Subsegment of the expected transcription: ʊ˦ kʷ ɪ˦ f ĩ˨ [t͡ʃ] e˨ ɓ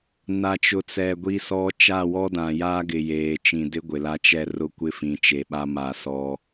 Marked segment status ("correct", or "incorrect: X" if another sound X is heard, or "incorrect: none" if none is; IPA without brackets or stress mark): correct